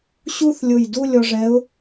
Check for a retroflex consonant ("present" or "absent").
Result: present